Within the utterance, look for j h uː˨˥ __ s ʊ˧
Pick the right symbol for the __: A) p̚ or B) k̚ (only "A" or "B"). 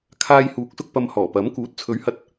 B